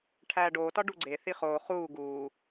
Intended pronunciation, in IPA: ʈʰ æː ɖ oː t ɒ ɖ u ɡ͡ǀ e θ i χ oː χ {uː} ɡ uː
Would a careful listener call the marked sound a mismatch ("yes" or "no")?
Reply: no